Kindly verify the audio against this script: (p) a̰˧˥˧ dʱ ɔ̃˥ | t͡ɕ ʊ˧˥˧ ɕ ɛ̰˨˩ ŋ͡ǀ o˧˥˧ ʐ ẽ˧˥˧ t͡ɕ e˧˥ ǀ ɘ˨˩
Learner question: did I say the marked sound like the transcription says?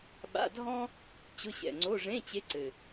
no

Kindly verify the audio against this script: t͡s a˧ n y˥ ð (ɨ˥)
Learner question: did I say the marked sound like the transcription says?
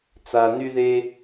no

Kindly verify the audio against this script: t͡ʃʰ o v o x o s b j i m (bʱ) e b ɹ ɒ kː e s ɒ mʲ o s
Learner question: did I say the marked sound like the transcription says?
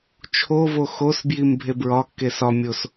yes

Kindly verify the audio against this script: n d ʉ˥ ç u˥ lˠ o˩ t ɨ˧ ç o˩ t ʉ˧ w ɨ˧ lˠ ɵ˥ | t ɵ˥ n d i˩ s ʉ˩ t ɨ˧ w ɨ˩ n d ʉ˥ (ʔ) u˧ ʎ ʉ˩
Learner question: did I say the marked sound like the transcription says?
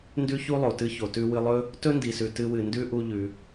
yes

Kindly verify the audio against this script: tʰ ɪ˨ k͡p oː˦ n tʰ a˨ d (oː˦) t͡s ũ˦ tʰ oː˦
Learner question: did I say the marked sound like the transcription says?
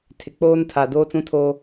yes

